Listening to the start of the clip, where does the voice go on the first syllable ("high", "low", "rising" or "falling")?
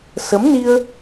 rising